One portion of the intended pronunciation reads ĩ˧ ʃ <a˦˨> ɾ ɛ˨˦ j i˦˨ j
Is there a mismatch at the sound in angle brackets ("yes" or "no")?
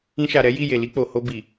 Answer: yes